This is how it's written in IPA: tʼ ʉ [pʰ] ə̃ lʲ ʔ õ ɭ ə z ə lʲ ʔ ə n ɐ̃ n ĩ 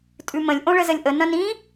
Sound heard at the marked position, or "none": m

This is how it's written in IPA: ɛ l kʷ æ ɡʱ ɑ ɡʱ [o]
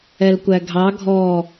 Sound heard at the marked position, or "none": ɔ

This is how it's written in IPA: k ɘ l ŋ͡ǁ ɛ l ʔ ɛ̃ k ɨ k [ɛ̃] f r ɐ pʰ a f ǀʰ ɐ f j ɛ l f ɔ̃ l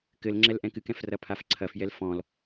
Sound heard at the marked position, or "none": ɛ̃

